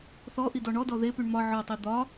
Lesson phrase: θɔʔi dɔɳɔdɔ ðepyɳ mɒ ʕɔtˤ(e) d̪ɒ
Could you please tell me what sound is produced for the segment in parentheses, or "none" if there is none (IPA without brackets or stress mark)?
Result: i